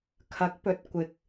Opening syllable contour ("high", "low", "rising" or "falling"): rising